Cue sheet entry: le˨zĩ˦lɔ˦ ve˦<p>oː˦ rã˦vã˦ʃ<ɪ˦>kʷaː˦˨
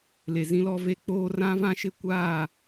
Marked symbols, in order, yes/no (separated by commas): no, yes